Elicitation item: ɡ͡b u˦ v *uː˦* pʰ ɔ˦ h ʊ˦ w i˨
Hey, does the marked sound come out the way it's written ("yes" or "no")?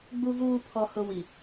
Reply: yes